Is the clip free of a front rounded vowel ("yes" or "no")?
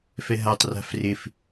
yes